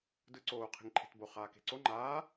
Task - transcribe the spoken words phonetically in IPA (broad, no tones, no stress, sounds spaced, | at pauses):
d ɯ ǀ oː qʰ e̤ ŋ ǃʰ e̤ t b o χ aː k e̤ ǀ o ŋ͡ǃ aː